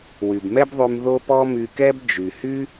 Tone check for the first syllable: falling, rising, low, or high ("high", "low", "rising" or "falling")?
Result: low